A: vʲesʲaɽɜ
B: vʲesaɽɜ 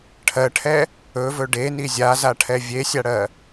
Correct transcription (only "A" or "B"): A